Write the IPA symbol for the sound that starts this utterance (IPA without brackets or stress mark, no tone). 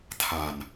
tʰ